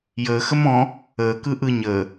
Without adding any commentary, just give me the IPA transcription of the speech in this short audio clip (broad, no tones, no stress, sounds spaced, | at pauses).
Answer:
j əː x ə m ɔ̃ | əː k ɯ ʔ ɯ ɲ əː